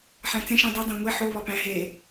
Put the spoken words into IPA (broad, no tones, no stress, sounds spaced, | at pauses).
ħ æ̃ t͡s ẽ ʃ ẽ dˤ i dˤ æ̃ ŋʷ e ħ o β ɒ p æ̃ ɦ e